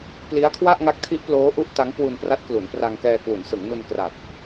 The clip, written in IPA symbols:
p l i˦˥ a̯ kʰ w a˥˩ ʔ ŋ a˦˥ k̚ tʰ i˦˥ ʔ p l oː˦˥ ʔ u˦˥ ʔ t a˦˥ ŋ k w u˧ n p r a˦˥ t̚ k l u˩˦ n p r a˧ ŋ k ɛː˧ k w u˩˦ n s ɯ˩˦ ŋ n u˧ n k r a˨˩ t̚

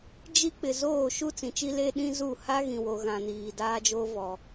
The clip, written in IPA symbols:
d͡ʒ i˦ k͡p ɪ˨ z oː˦˨ ʃ u˦ t͡s ĩ˨ t͡ʃ i˦ l e˦ ɗ ĩ˦ z u˦˨ h a˦ ɣ ĩ˨ w o˨ ɣ ã˨ n iː˨ d aː˦ d͡ʒ oː˦ v ɔ˨

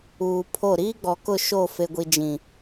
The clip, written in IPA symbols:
uː˨ pʰ o˦˨ ɾ iː˦ ɡ͡b ɔ˨ k ʊ˦˨ ʃ o˦˨ f e˦ ɡʷ i˦ d͡ʒ ĩ˨

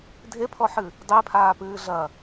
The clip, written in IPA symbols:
dʱ e pʰ ɔ ħ ɨ | dˤ e pʰ aː p ɨː ɮ ɐ

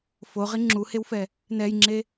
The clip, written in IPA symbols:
f o ʁ i ŋ͡ǁ u h e w f ɛ | n ɛ j ŋ͡ǁ e

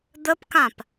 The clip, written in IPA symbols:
d̪ ə p k ã p

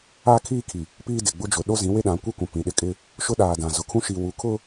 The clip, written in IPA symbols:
a˦ kʰ iː˦ kʰ i˨ | p iː˦ d ɪ˨ ɡ͡b ʊ˦ d͡ʒ ʊ˨ ɗ o˦ z ĩ˨˦ w e˦ ɗ ã˨˦ kʷ i˦ kʷ ã˨ p ĩ˨ ɗ ɪ˦ kʼ ɪ˦ | ʃ ʊ˦ ɗ aː˨ d ã˨ z ʊ˨ kʰ ũ˦ ʃ i˨ w u˨ kʰ ʊ˦

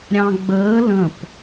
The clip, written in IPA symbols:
ɾʲ ɑ̃ ɡ͡b əː l ə̃ p

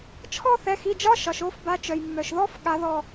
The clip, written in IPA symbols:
t͡ʃʰ ɔ˥˧ θ ɛ˩˧˩ x i˩˧˩ d͡ʒ ɒ˧˥˧ ʃ ɒ˩ ʃ o˨˦ f b a˨˦ t͡ʃ œ˩ j mː œ˩ ʃ ð ɔ˧˥˧ f ɠ a˨˦ ð ɔ˧˩

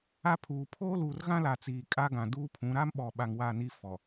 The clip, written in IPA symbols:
a˦ pʰ uː˨ pʰ oː˦ l uː˨ r ɣ ã˦ l a˨ t͡s iː˨ kʼ a˦ ɡ ã˨ d uː˦ pʰ ũ˨˦ ɾ a˦ m ɓ ɔ˨ ɓ a˨ ŋ w a˦˨ n i˦ f ɔ˨

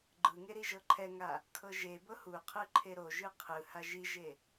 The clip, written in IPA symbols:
ɡ͡ǃ ɯ ŋ e ɾ i ʒ ɤ ǃʰ ɛ ŋ a | kʰ ɤ ʒ e b ɤ h u qʰ ɯ ǃʰ e ɾ o ʒ ɯ qʰ ɯ h a ʒ i ʒ e

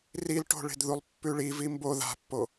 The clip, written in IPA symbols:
r i l ʈ o̤ ɭ e̤ d ð u lˠ pː ʉ ɭ i v i m b o ð a̤ pː o

